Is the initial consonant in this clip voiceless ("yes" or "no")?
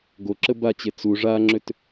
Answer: no